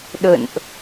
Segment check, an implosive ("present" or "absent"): present